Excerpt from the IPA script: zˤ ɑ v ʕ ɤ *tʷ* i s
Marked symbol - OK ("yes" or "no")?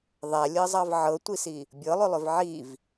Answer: yes